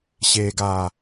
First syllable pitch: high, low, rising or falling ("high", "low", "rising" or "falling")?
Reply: low